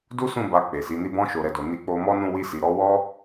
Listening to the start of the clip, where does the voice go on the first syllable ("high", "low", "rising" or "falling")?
high